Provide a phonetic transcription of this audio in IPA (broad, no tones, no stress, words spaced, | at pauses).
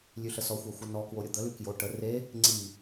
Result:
lʲʉɬəsɔxʷa xʷənɔkwo ɾʲʊd̪əlʉ kjo ʈə re | ŋ͡ǀi